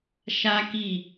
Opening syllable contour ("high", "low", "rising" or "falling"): high